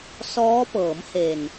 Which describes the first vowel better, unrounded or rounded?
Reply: rounded